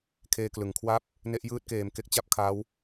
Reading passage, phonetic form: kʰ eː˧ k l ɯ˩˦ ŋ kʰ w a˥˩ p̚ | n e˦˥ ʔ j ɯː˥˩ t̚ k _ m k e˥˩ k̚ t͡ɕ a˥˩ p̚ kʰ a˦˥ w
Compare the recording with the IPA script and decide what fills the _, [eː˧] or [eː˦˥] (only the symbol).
eː˧